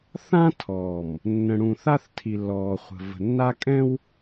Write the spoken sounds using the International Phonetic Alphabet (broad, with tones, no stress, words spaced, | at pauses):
θã˦tʰɔː˨m | nːə̃˨ɽũ˨θa˦θtʰi˨ lːɔː˨χʷə̤˨ və̤˨nːa˦kʼɛ̃˦w